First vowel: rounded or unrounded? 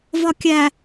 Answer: rounded